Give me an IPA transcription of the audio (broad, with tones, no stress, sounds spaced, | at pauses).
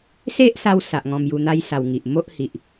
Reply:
s e˦ ʔ s a˧ w s a˨ ʔ ŋ ɔ̃˧ m j u˧ n̪ a˦ j s a˧ w ŋ i˨ ʔ m o˦ ʔ h i˨ ʔ